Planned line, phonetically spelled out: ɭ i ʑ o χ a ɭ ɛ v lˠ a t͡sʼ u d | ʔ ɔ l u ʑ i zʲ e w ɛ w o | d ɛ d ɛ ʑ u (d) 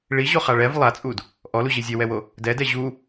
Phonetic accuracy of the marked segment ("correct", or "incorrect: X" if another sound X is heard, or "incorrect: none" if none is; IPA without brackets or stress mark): incorrect: none